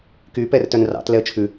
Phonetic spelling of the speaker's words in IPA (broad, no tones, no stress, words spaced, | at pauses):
ky pɛrtœnrɑ̰t lɛə̯t͡ʃʰʉ